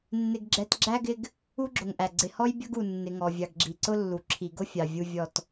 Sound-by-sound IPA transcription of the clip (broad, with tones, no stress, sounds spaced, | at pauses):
nː ɪ˨ ɡ ɡ͡ǁ ɛ˨ t ɡ͡ǁ æ˦ ɡ ɪ˦ ɡ | u˦ ɡ͡ǁ ʊ˨ ŋ ʔ æ˨ ɡ͡ǀ ɪ˨ h ɔ˦ j bʲ ʌ˦ ɡ u˨ nː ɪ˨ ŋ ɔ˨ vʲ ɑ˨ ɡ ɡ͡ǁ i˨ ǀ ʊ˦ lː u˨ ǁʰ i˨ ɡ ʊ˦ fʲ ɑ˨ vʲ u˨ vʲ ɔ˨ t